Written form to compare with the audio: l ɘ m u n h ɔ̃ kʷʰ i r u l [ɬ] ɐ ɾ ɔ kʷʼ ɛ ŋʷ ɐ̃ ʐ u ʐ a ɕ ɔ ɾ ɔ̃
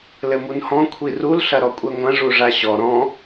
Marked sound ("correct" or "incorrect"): correct